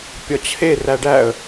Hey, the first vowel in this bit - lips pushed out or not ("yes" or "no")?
yes